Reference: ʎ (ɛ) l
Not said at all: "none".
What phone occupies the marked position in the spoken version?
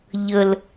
ə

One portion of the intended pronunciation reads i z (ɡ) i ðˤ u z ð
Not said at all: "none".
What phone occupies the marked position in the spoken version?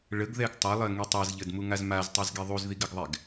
ɡ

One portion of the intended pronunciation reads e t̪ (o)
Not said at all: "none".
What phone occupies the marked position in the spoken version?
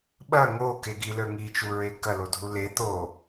o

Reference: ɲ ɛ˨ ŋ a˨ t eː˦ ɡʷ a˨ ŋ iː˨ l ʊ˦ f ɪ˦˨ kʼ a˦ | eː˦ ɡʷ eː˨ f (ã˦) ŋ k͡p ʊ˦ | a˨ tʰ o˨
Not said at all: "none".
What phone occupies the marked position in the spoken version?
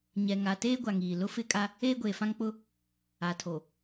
ã˦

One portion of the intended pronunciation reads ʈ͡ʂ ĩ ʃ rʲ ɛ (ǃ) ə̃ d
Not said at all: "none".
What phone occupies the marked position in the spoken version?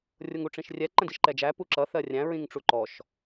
ǃ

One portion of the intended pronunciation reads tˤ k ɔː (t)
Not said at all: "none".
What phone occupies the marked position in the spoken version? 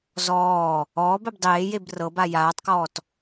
t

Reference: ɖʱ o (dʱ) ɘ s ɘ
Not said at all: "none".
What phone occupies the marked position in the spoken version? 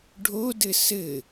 d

